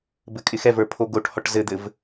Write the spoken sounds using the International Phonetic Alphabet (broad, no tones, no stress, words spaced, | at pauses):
bɘkʼɪxɛvə˞ pʰoɡoʈhɔʈ zɘd̪ɘv